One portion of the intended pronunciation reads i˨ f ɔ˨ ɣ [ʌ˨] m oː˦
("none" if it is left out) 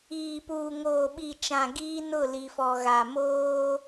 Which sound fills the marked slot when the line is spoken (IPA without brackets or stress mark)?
a˨